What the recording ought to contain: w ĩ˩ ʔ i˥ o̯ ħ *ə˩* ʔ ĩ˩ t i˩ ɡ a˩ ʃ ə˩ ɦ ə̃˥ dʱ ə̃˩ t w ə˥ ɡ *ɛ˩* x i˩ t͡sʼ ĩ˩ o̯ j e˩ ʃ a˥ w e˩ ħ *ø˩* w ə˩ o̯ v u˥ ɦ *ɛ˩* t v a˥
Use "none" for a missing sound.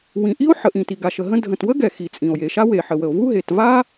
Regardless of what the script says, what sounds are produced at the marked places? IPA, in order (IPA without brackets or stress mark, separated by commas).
ə˩, ɛ˩, ə˩, e˩